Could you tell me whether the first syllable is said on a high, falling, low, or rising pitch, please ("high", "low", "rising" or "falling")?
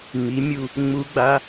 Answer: rising